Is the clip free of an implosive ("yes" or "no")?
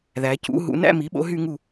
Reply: no